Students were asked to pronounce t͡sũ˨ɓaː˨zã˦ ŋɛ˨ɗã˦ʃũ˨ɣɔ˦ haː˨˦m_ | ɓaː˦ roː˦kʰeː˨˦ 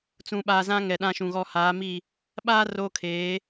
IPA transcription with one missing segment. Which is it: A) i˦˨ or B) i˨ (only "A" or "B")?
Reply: A